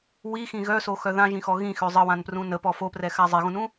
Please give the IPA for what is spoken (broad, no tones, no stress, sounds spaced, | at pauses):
w i x ĩ ɣ œ s o x œ ð ã ʒ ĩ x ɔ ɣ ĩ x ø zˤ ə w ã n p r ũ n ə p ɔ f o p r ɛ x a zˤ e ɣ ũ n ũ